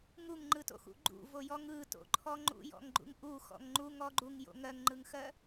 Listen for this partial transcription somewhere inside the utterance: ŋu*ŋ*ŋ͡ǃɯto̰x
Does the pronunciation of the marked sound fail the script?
no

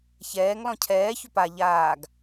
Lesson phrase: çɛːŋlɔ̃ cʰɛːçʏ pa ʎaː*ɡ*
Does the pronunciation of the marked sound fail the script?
no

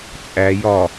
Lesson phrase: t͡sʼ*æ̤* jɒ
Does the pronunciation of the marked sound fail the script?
yes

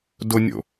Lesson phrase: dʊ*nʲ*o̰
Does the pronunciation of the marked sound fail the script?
no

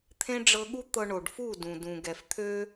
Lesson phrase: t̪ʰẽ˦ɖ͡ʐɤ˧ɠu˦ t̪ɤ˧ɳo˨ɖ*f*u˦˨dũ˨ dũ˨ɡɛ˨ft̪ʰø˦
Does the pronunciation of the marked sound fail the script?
no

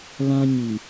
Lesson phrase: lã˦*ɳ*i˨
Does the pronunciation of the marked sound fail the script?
yes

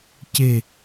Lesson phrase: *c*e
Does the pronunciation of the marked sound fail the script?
no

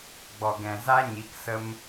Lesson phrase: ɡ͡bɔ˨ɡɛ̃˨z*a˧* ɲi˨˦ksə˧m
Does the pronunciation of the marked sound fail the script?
no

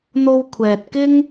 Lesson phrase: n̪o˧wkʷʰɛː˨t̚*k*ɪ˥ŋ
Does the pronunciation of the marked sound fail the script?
no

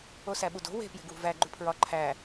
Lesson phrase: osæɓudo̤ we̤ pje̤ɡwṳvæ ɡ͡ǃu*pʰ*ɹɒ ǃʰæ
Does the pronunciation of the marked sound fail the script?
no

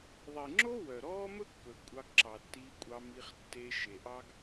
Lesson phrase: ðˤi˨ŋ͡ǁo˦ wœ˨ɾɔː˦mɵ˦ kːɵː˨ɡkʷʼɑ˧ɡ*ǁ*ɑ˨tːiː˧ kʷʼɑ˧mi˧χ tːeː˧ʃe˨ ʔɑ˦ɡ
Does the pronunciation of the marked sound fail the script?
no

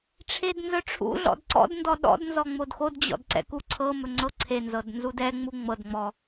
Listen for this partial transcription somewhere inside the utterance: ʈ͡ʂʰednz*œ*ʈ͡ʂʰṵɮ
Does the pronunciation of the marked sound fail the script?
no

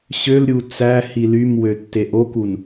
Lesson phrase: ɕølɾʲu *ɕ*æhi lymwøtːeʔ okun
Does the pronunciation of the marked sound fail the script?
yes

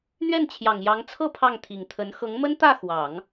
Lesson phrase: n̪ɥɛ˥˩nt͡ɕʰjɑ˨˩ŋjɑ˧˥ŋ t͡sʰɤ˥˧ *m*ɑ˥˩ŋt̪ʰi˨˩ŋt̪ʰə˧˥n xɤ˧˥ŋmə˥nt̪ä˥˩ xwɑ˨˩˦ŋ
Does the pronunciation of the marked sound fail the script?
yes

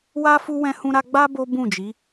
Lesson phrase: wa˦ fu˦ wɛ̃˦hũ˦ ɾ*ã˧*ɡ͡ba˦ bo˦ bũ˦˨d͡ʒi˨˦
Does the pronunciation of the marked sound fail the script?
yes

